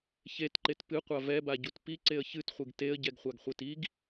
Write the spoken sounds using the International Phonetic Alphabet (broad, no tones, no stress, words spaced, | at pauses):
çetǃet pɨqʷa vɛbaɟut piǀeə̯ çɨtχʷɨɡ teə̯ɟɛɡχʷaɡχʷet iɡ